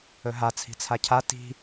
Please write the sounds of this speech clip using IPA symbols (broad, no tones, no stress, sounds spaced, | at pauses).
ɵ ɦ a t͡sʰ i̤ t͡sʰ a cʰ a t i̤